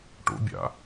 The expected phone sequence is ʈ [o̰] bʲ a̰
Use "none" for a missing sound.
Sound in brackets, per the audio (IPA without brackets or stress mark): o̰